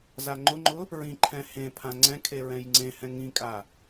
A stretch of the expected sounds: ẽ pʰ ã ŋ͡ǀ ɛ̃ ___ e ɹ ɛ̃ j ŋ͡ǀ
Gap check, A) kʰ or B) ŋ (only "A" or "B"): A